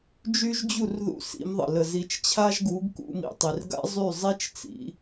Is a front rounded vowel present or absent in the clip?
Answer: present